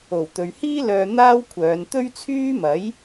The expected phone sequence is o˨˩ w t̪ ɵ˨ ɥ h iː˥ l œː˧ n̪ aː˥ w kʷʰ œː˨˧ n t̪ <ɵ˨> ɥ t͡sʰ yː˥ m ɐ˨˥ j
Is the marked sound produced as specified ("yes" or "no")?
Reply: no